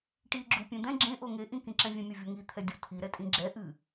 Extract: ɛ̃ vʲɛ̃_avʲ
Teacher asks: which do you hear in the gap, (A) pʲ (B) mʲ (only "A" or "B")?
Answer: B